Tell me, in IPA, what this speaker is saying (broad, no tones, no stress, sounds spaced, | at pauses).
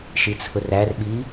ʃ i t͡sʰ ʊ r æ r ɓ iː